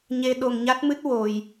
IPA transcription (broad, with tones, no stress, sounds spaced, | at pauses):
ɲ e˧ ɗ o˧ ŋ ɲ a˦˥ t̚ m ɨ˦˥ t̚ w o˧ j